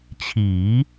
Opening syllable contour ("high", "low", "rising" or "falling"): rising